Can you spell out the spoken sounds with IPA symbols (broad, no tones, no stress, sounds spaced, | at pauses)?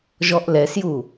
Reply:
ʒ ɔ ʔ l ɛ s j u